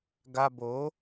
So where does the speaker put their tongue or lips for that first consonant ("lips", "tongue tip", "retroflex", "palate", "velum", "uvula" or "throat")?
velum